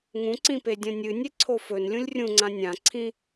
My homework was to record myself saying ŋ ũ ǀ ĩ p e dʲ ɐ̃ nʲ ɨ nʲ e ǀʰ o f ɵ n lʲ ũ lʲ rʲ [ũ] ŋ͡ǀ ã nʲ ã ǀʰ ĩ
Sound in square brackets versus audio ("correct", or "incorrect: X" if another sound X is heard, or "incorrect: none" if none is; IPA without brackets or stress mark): correct